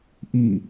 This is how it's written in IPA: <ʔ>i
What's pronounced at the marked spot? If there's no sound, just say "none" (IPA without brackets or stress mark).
ʔ